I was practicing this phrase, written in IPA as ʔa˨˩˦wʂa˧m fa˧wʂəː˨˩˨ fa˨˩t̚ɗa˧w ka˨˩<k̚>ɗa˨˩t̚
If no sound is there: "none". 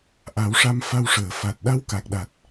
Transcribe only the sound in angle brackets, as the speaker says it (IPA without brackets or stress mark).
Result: k̚